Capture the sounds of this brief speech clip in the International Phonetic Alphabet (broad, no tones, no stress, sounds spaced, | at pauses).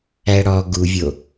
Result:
æ ɽ ɔ ɡ u vʲ o